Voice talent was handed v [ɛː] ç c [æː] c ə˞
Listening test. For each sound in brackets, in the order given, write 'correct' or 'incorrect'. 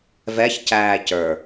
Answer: incorrect: ɛ, correct

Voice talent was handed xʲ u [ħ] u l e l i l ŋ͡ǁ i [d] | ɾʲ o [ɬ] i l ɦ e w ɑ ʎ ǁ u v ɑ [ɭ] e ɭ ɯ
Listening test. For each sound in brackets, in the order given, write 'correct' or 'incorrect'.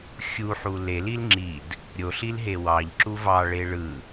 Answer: correct, correct, correct, correct

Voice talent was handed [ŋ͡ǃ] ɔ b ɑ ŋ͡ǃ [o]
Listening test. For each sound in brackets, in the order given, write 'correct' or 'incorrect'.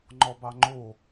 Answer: correct, correct

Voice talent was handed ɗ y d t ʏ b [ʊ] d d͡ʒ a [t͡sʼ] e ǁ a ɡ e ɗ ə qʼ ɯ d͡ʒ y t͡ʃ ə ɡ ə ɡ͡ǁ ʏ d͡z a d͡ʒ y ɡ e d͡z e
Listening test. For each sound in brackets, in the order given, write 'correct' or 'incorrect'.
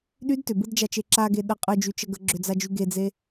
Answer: incorrect: ɯ, incorrect: t͡ʃ

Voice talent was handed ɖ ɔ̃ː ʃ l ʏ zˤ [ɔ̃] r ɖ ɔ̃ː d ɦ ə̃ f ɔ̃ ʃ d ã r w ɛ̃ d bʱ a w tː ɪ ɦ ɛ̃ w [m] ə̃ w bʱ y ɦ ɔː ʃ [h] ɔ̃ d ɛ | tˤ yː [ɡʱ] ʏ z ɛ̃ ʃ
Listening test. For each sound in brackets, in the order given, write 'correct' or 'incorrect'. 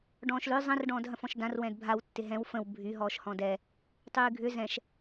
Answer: incorrect: ə̃, incorrect: f, correct, correct

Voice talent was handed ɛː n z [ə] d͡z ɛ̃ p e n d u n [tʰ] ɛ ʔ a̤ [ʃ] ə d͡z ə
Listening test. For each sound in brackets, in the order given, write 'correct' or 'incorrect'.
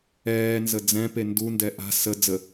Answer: correct, incorrect: d, incorrect: s

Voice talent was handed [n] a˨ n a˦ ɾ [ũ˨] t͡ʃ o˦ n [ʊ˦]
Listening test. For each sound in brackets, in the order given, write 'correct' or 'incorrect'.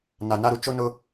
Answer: correct, incorrect: u˨, correct

